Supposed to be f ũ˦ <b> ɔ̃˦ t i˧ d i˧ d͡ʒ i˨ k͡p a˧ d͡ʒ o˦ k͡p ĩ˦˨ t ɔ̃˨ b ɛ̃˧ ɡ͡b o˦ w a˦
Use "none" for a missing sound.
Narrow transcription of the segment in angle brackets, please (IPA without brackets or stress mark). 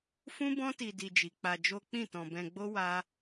b